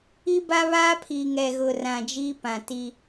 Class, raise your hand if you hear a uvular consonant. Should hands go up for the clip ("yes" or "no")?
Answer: no